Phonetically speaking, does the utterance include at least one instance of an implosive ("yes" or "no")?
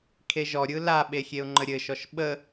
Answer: yes